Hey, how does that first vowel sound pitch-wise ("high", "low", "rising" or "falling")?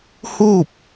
falling